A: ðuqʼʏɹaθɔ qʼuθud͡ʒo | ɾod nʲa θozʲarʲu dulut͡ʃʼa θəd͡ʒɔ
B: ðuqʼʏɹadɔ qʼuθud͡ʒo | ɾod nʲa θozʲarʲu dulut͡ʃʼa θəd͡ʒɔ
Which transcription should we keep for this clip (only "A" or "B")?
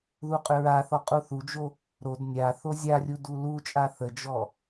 A